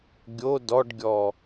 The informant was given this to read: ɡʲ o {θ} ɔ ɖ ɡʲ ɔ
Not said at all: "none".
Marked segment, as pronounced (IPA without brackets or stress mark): d